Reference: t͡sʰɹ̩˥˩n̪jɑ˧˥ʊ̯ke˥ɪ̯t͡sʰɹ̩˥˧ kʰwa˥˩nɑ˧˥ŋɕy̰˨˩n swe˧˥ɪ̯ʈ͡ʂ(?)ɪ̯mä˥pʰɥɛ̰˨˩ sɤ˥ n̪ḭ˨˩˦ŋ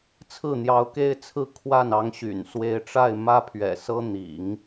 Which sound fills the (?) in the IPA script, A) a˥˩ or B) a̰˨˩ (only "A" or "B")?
A